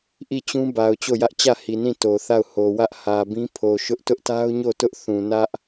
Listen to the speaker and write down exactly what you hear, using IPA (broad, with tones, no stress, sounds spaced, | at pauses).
ʔ i˦˨ t͡ɕ ũ˦ b a˨ ʊ̯ t͡ɕ o˦˨ j ä˦ ʔ t͡ɕ ä˦˨ h i˨ n ĩ˦˨ t o˨ θ a˦˨ ʊ̯ h o˨ w ä˦ ʔ h ä˨ b ĩ˦ pʰ o˨ ʃ ʊ˦ ʔ t ʊ˦ ʔ t a˦ ʊ̯ ɲ o˦˨ t ʊ˦ ʔ θ ũ˨ n ä˦ ʔ